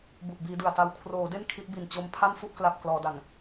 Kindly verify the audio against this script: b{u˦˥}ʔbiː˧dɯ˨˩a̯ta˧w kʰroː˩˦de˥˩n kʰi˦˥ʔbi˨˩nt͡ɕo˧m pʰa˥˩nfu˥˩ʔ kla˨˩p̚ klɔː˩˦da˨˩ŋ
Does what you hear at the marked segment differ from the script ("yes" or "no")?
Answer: yes